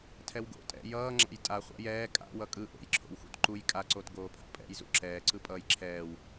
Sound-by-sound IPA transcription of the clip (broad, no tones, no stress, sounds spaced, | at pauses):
tʰ ɛ w ɡ o̰ tʼ ɛ̰ j ʌː ŋ͡ǁ a̰ j tʼ a χʷ a̰ j ɛː kʼ a̰ w ʌ kʼ ɯ ʔ o̰ j ǁʰ o̰ w x ṵ t ǃ u j kʼ a ǀ o t ɡ oː pʰ a̰ pʼ ɛ̰ j z ṵ ǁ ɛː ǀ ɯ pʼ ʌː j ǁʰ ɛː w